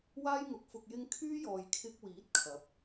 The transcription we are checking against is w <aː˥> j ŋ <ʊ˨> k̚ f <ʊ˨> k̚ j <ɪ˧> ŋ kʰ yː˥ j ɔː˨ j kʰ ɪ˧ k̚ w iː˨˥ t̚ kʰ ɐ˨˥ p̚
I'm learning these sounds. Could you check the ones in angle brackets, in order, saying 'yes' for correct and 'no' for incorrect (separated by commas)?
yes, yes, yes, yes